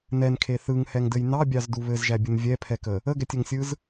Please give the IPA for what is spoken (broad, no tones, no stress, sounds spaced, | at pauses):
n ɛ n kʰ e θ ɯ ŋ h ɛ ŋ d ɘ j n ɑ bʲ ɑ z d u β ɘ z ʒ æ bʲ ɯ n vʲ ɛ pʰ ɛ k ə | ə ɡ ɛ tʲ ɘ ŋ sʲ ɯ z